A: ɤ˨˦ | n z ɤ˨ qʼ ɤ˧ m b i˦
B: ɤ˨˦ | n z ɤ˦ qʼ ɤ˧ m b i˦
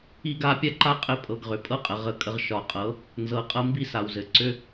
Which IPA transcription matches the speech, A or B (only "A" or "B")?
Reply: A